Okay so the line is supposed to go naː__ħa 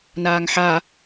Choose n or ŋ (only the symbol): ŋ